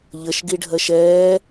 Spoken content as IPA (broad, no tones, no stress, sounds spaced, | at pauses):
ʎ ə ʃ ɡ i ɖʱ ɜ ʃ ɛː